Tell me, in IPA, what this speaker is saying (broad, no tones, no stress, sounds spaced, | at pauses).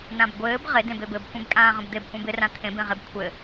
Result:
n ã b ɡʷ ɘː b ʁ ɪ d ẽ b e b ɘ b kʷ ẽ b kʼ ãː ʁ ə̃ b d̪ e b kʷ ɛ̃ b ɪ r ã t̪ʰ ẽ b ẽ ʁ e b kʷʰ ɘ